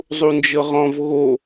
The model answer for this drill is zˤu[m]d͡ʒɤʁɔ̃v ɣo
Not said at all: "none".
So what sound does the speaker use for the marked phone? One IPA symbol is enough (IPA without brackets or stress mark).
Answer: n